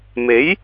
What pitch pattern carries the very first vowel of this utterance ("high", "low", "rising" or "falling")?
rising